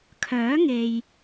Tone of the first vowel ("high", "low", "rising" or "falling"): rising